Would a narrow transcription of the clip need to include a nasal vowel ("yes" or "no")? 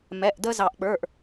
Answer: no